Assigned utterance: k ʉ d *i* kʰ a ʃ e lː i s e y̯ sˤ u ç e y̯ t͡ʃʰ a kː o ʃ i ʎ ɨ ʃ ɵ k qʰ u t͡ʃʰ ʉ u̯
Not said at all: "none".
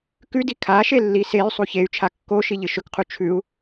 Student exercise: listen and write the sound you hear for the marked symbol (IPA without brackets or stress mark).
i